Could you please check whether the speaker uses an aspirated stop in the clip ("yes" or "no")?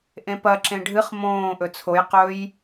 yes